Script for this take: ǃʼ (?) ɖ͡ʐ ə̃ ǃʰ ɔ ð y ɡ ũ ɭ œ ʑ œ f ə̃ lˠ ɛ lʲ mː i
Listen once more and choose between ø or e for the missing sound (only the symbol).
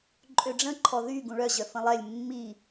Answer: ø